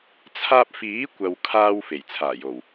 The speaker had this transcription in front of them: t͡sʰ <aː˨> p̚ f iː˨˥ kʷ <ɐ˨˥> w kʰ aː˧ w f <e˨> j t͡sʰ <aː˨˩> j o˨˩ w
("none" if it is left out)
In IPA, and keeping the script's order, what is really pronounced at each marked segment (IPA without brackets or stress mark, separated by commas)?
aː˧, ɐ˨, e˨˩, aː˨˩